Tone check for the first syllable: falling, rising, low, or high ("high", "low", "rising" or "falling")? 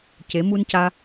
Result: rising